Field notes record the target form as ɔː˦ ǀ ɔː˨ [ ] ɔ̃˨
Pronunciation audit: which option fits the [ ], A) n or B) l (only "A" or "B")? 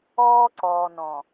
A